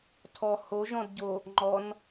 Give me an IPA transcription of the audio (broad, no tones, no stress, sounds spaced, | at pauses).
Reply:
tʰ ɔ h o ʒ ɔ̃ d ɟ o | ŋ͡ǃ ɔ n